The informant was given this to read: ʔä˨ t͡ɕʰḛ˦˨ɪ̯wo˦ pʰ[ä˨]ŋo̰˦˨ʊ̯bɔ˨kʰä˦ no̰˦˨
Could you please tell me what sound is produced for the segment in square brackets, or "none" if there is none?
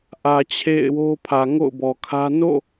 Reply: ä˨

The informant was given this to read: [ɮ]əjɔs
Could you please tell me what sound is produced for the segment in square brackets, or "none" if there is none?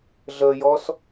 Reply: ɮ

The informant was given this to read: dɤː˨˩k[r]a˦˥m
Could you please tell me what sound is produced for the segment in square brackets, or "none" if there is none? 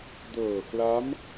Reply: l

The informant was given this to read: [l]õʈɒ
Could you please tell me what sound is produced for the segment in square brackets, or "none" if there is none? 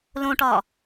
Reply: l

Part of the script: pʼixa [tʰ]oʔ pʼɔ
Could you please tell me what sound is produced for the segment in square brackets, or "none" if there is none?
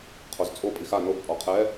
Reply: n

